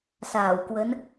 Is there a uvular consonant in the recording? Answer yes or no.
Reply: no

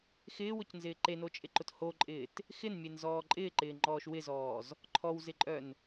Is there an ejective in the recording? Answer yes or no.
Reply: yes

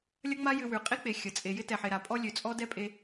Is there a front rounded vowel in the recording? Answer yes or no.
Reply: yes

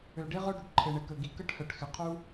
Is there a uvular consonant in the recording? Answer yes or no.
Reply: yes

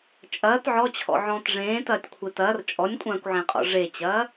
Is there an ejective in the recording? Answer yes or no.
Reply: yes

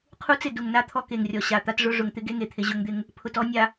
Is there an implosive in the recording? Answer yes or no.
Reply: no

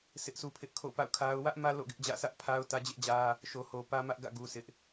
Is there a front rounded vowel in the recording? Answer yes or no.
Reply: no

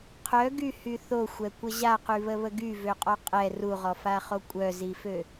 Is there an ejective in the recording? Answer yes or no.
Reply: yes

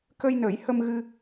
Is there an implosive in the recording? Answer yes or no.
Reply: no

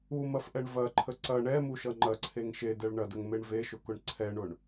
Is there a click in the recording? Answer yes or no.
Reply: yes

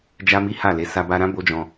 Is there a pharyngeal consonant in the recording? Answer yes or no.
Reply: no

